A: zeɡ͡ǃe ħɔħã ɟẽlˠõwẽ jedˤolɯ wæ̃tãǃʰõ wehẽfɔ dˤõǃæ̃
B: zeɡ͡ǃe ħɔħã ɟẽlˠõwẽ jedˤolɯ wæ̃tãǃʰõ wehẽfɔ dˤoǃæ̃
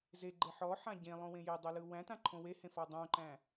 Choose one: A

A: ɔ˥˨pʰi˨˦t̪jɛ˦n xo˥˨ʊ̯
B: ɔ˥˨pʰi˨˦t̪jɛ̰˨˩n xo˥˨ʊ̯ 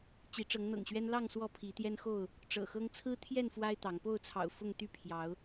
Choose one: A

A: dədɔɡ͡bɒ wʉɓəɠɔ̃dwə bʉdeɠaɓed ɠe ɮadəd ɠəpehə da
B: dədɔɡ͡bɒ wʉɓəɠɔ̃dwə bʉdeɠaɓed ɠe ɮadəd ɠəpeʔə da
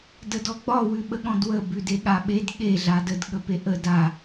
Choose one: B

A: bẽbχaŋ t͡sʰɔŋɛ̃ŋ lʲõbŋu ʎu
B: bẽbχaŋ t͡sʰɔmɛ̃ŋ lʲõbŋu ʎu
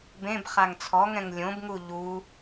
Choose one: A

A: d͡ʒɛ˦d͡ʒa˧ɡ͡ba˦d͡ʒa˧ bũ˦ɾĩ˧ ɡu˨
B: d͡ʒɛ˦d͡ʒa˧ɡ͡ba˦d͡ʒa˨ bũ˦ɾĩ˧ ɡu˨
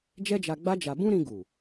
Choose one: A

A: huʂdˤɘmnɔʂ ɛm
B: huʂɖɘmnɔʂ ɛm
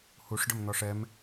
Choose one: B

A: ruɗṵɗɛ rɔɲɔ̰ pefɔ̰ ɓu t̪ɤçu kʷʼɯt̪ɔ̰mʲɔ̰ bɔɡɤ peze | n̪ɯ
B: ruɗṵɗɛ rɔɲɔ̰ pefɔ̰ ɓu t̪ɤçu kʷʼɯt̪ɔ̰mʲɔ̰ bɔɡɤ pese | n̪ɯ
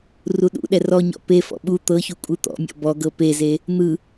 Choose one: A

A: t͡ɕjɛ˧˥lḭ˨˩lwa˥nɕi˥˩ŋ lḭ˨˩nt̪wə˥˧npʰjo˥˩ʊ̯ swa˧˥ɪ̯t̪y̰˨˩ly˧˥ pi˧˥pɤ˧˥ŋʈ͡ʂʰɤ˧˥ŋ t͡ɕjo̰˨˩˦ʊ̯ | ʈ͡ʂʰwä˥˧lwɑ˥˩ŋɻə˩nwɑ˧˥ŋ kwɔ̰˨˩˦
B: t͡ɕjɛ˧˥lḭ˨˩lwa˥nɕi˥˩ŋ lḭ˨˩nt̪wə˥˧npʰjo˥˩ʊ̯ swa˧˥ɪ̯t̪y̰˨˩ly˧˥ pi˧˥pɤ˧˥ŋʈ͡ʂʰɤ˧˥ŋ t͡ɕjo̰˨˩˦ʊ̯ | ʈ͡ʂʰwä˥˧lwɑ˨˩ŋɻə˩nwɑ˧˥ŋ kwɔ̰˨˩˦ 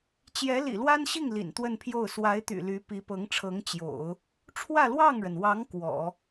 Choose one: A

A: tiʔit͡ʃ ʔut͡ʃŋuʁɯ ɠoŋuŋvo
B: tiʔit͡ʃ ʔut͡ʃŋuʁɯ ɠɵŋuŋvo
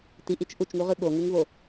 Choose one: A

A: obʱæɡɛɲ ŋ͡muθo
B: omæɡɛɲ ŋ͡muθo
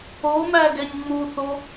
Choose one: B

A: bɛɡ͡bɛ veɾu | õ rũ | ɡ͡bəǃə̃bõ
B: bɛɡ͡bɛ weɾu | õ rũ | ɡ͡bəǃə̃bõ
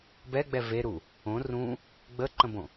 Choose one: A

